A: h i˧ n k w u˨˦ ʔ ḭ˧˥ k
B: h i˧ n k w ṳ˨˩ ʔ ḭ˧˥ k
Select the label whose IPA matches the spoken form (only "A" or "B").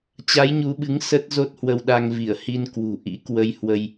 B